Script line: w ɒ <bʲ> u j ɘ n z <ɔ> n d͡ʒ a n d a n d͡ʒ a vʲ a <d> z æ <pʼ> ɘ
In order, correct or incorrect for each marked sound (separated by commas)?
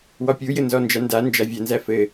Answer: incorrect, correct, incorrect, incorrect